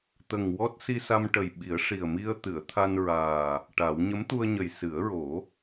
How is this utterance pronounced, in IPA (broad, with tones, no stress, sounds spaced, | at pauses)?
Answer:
t̪ ə˨˩ ŋ w ɔ˦˥ t̚ s i˧ s a˧ m ʈ ə˨˩ j ɓ i˨˩˦ ə̯ ʂ i˨˩ ə̯ m i˧ ə̯ t̪ ɨ˨˩˨ ə̯ t̪ʰ a˧ n ɹ aː˨˩ | ʈ a˨˩˦ w ɲ ə˧˥ m t̪ u˧ ə̯ ɲ ə˨˩ j s ɨ˨˩˦ ə̯ ɹ o˨˩˦